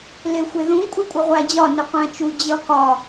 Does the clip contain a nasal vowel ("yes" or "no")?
yes